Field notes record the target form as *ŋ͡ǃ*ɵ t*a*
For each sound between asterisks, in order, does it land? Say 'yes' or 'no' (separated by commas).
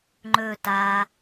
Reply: yes, yes